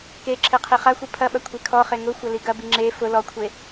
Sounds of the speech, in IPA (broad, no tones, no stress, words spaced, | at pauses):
keǁʰe qʰiχaxʷi pʰɐɓɐ kʷʰekʰɔχe ŋʊxʷɐ liɡɐbi ŋ͡ǁe fʊ lɔkʷʰe